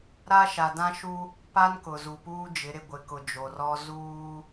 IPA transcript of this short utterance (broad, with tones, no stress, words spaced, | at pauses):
ɾa˦ʃa˨dã˦ʃu˦ | pa˦nkʊ˨ zu˨puː˦d͡ʒɪ˨˦ ɾɪ˨ɡʷɪ˨kʊ˨ d͡ʒo˨rɔ˦ zuː˦